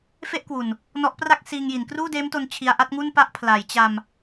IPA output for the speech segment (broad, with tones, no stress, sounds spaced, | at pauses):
f e˥˩ ʔ k w u˨˩ n | n ɔ˦˥ ʔ p r a˥˩ k̚ s iː˧ ŋ j i˩˦ n k r uː˥˩ d eː˦˥ m t o˧ n t͡ɕʰ i˧ a̯ ʔ a˥˩ t̚ ŋ u˥˩ n p a˦˥ ʔ pʰ l a˩˦ j t͡ɕ a˧ m